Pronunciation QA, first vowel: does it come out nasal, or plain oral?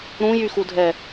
nasal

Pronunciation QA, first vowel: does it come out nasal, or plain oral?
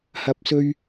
oral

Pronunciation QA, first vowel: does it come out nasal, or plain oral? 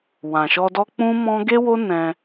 nasal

